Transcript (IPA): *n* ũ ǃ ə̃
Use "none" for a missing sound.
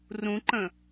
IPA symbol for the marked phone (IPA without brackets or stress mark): r